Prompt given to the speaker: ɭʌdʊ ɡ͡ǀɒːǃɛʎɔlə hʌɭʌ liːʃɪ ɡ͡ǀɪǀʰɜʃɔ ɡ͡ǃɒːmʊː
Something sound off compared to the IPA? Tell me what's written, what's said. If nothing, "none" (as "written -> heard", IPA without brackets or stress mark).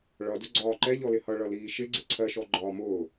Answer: ə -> ɪ